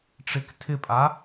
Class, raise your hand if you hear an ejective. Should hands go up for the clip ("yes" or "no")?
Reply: yes